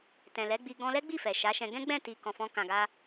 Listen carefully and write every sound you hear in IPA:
t ɛ̃˨ l ɛ˨˦ ɡ͡b i˧ ɡ ɔ̃˧ l ɛ˦ ɡ͡b i˦˨ f ɛ˨ ʃ a˨˦ ʃ ɛ̃˧ ɡ ɛ̃˦ ɡ͡b ɛ̃˦˨ t i˨ k ɔ̃˨ f ɔ̃˧ k ã˨ ɡ a˧

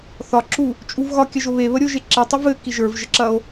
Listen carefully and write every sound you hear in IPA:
θ ɒ ǁ u | t͡ʃʼ u v ɣ ɒ kʲ ɐ ʒ o β e β ə ɾʲ o ʒ e ǁ i tˤ ɘ v ɘ k i ʒ ə˞ v ʒ ə ǁ ɐ o̯

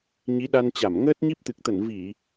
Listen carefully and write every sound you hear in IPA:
ɲ i˨˦ ɗ a˧ n t͡ɕ a˧˩ m ŋ əː˦˥ t̚ ɲ i˦˥ p̚ t̪ ɨ˨˩ k̚ t̪ ə˧˩ n v i˧˩˨

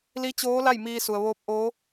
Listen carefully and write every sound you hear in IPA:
l i˧˥ t͡ɕ oː˧˥ l a˥˨ j m iː˧ s u˩ ə̯ ʋ oː˧˥ p̚ ʔ oː˧˥

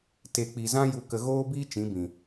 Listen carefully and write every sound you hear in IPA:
t e˨ k͡p i˨ z ã˦ j u˧ k ə˧ ɣ oː˦ b iː˦ t͡ʃ ĩ˨˦ b ĩ˨

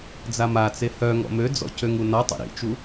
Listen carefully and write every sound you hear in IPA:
d͡z a m a t͡s e h œ ŋ ɔ̰ m ø d͡z ɔ̰ c ø ŋ u n ɔ tˤ ḭ ɾ ḭ t͡ʃ u

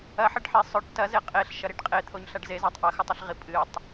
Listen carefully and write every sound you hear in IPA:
ɐ ħ ɐ ɖ ħ e sˤ ɵ ʈ t ɐ z e qʼ e ɬ ʃ ɐ ɾ i ɖ qʼ e t̪ʰ o ɲ ɬ a ɖ z e z a tˤ ʔ ɐ x ɵ tˤ ɨ ɬ ʁ i pʼ ɨ tˤ

